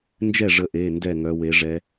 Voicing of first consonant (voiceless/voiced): voiced